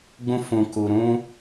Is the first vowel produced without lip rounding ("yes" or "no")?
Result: no